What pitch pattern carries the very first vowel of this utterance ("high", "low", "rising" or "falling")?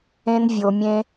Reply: high